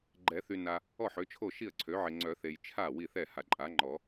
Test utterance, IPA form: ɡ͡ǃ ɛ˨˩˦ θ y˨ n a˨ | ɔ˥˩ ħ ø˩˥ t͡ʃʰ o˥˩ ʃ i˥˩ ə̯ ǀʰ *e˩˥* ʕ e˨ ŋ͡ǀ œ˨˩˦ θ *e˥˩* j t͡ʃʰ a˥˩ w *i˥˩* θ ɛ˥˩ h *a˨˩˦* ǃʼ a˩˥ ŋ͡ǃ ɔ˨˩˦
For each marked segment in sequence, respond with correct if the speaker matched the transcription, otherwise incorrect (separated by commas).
incorrect, incorrect, correct, incorrect